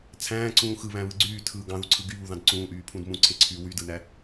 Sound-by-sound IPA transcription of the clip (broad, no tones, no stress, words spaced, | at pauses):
t͡sʰæ̃ːǀũː xɯβæ̃βɯ ɡ͡ǀyːtʰɯː ɡɑ̃ðuǀʰɯ ɡyβuðɑ̃d ǀũːʔyːpʰũd mũǀʰeǀʰyː wydɯnæ